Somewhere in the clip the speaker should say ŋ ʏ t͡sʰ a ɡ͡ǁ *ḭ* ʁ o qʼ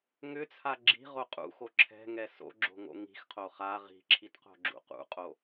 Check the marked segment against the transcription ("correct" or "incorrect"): incorrect